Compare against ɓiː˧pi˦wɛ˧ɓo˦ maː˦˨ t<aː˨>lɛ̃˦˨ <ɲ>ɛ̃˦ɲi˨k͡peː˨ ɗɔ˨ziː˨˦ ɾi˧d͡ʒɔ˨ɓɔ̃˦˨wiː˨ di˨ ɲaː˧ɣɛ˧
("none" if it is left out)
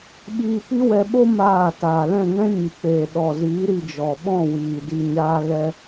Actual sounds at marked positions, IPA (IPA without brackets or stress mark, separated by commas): aː˨, ŋ